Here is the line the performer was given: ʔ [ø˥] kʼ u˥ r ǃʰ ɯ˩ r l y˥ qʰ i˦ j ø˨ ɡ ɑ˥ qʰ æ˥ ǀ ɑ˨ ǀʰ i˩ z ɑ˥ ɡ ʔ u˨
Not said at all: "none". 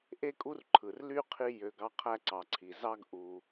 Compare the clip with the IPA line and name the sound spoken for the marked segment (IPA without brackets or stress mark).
e˥